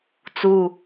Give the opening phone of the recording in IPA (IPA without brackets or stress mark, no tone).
t͡s